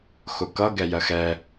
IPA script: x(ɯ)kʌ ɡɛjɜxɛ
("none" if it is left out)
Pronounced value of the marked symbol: ʊ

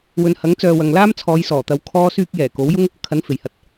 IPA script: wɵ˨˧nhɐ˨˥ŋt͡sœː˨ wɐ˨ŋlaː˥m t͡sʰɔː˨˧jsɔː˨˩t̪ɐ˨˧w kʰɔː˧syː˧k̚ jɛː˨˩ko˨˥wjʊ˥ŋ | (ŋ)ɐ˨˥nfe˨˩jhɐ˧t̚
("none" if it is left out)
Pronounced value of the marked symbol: kʰ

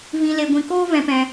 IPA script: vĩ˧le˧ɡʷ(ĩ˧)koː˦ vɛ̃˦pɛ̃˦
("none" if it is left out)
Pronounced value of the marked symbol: ĩ˧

